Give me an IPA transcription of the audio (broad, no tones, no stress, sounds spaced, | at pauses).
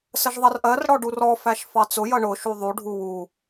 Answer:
s ə ʒ ðˤ ʌ r ʔ ɜ r ɽ ɔ ɖ u r ɔ f æ ʃ f ɑ t͡s ʊ j ʌ ɳ ʊ ʃ u ðˤ u ɖʱ u w u